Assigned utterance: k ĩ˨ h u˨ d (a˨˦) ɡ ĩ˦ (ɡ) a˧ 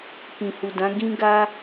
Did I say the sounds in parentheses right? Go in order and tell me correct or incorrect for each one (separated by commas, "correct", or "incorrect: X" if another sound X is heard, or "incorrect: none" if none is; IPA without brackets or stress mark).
incorrect: ã˨˦, correct